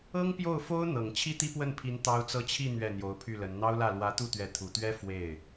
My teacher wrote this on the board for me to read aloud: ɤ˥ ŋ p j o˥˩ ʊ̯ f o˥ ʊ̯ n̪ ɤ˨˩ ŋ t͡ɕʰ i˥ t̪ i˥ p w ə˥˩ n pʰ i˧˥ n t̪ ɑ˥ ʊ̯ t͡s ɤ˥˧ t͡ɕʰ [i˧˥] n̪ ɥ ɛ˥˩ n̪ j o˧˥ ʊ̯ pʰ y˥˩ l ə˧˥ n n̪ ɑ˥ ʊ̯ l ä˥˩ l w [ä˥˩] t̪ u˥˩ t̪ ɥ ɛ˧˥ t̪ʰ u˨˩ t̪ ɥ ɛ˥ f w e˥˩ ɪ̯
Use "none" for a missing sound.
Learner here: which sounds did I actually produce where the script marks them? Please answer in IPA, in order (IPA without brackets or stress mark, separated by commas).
i˥˧, ä˧˥